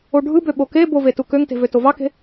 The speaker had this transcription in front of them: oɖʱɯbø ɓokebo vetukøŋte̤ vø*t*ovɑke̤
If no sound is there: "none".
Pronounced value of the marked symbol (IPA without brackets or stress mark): t